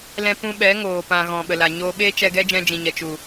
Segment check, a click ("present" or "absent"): absent